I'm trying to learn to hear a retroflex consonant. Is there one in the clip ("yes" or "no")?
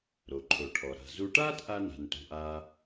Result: yes